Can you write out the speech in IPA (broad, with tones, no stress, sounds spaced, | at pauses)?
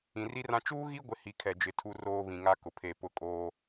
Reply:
ĩ˨ r i˦ r ã˦ t͡ʃ uː˦ ɣ i˦ ɡʷ ɪ˦ h i˨˦ kʰ ɛ˨ d͡ʒ ɪ˨˦ tʰ u˦ r oː˦ β ĩ˨ ŋ a˦ k ʊ˨ pʰ e˦˨ p ʊ˦ kʼ oː˦